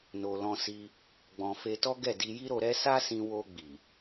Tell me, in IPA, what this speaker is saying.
no˧ lɔ̃˧si˧ | ɡ͡bɔ̃˧ fe˧tɔ˦ɡɛ˦˨ di˧ji˦ɾo˧ɾɛ˦ sa˦sĩ˧ wo˧ɡ͡bi˨

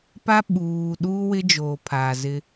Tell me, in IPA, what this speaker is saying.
pa˦ɓuː˨ ɗuː˦wɪ˦d͡ʒoː˨ pʰa˨zɪ˦

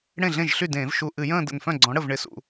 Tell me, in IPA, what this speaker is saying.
ɽẽ˥˩ɮẽ˥˩ʒɬy˥˩dẽː˧˩˧v ʃu˧˩ʔɨ˧˩˧jə̃ː˥˧ də̰˧˩nfœ̃˥˩ ɡ͡ǀɔ̃˨˥ ɽə˥˩v ɳɪ˨˥sṵ˧˩˧

